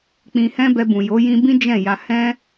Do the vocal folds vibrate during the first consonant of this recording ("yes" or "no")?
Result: no